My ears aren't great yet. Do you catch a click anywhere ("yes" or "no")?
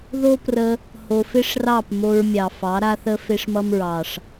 no